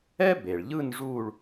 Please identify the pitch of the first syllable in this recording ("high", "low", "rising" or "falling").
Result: high